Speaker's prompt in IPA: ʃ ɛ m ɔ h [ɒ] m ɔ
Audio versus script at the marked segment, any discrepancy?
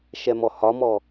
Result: no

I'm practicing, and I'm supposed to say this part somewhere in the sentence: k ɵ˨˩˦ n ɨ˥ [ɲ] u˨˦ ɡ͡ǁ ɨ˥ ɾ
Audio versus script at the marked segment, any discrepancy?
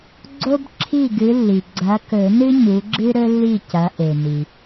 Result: no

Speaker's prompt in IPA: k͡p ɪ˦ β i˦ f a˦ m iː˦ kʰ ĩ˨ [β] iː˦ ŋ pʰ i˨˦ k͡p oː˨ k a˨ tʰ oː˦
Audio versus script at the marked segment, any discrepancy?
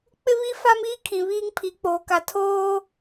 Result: no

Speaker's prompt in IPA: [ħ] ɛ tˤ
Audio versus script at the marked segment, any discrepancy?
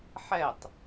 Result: no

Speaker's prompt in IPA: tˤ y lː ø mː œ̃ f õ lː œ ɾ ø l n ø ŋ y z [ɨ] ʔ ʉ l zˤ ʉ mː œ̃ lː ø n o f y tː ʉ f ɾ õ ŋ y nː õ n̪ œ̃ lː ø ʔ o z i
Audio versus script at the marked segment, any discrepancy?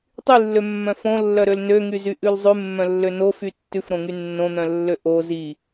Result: yes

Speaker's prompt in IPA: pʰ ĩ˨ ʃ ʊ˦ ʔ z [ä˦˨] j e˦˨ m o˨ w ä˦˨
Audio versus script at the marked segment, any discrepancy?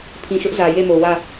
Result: yes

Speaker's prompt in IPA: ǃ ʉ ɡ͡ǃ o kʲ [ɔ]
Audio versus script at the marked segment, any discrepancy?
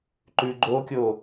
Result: yes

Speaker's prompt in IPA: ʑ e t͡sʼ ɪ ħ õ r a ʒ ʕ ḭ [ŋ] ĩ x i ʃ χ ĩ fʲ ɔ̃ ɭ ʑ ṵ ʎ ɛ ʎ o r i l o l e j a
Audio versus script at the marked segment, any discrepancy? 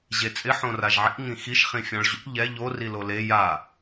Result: no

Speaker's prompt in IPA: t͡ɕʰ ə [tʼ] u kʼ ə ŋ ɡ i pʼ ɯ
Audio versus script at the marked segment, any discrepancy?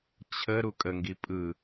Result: yes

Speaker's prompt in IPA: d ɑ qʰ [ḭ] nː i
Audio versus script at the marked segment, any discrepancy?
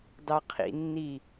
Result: no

